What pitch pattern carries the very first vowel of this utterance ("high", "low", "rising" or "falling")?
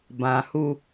low